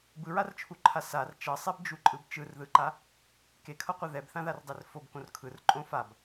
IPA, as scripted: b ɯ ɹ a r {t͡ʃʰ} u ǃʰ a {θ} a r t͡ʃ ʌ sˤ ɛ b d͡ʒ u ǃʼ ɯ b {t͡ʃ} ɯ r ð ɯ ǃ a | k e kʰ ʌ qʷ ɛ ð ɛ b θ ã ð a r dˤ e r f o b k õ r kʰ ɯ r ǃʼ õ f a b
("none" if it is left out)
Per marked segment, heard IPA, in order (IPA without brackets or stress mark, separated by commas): t͡ʃʰ, s, t͡ʃ